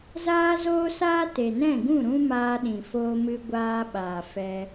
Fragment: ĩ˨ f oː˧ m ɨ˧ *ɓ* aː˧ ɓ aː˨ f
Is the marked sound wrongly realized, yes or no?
yes